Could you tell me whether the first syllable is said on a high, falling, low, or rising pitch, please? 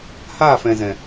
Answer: falling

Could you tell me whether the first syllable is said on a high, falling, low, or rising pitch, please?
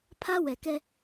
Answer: high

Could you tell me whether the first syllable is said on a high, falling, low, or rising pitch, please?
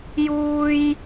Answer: low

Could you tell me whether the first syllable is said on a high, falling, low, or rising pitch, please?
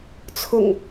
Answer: low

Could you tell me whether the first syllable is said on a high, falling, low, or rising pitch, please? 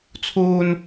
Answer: high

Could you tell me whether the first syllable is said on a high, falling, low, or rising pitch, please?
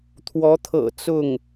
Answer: rising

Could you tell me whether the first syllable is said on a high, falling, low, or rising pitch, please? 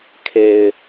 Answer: low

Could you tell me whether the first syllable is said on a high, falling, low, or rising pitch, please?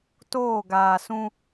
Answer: falling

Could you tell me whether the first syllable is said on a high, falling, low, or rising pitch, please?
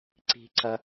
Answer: high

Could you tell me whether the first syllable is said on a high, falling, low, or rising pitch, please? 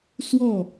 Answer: falling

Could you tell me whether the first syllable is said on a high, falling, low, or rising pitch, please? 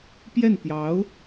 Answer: falling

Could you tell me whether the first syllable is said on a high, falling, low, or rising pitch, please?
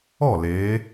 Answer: falling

